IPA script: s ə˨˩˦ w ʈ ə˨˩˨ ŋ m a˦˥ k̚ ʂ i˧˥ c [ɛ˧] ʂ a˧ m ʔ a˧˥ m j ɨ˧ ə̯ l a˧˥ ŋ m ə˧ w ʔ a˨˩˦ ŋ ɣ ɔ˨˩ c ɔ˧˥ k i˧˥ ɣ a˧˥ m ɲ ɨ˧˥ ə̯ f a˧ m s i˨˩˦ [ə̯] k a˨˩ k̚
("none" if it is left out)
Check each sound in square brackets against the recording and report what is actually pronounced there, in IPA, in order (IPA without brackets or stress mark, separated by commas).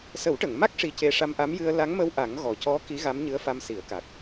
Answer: e˧, ə̯